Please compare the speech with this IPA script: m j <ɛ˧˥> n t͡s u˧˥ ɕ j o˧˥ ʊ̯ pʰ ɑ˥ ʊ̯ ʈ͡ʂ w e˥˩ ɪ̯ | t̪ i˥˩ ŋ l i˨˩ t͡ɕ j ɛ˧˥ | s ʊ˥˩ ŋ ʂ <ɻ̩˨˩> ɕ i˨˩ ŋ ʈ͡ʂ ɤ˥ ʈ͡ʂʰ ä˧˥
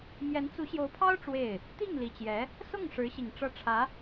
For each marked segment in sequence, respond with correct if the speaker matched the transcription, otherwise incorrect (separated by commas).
correct, incorrect